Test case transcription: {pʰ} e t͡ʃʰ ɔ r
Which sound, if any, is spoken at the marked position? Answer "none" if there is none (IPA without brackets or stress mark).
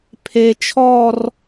pʰ